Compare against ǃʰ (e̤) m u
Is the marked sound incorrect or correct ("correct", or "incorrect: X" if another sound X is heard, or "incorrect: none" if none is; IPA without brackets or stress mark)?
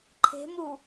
correct